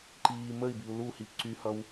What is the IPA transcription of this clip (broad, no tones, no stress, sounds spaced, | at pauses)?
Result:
ǃ iː m ə i̯ b i u̯ l u h i p ǀ y h ʌ w